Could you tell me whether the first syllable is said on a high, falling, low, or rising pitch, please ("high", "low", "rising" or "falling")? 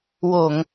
low